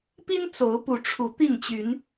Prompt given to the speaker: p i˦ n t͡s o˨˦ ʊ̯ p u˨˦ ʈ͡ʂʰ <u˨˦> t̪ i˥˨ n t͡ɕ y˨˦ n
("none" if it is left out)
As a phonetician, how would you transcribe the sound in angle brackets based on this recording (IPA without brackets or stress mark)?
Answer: u˨˦